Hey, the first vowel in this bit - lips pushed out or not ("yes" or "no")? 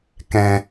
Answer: no